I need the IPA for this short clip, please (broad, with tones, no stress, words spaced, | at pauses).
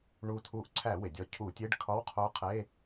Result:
ɳu˧˩ tʰu˧˩ʔǀʰæ˧˩˧we˩dʲɒ˧˩ cʰu˧˩˧tʲe˧˥˧ɖ kʰɒ˧˥˧wqʰo˧˥qʰe˧˥˧